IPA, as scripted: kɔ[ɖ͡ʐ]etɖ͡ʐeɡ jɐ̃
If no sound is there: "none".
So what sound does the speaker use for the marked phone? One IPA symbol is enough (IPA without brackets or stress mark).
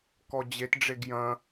d͡ʑ